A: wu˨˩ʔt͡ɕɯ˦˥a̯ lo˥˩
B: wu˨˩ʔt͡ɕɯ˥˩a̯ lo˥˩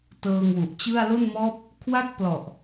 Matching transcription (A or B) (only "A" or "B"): B